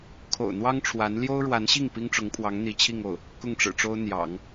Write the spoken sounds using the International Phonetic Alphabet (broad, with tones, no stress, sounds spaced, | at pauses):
kʰ o̰˨˩ ʊ̯ n̪ w ɑ˥ ŋ ʈ͡ʂʰ w a˧˥ n l j o˥ ʊ̯ ɻ w a˧˥ n ɕ i˥˩ ŋ p i˥ ŋ ʈ͡ʂ ʊ˧˥ ŋ pʰ w ɑ˧˥ ŋ n̪ i˧˥ t͡ɕʰ i˥˧ ŋ o˥˩ ʊ̯ | k ʊ˥˩ ŋ ʈ͡ʂ ɻ̩˨˩ ʈ͡ʂ o˥ ʊ̯ n̪ j ɑ̰˨˩˦ ŋ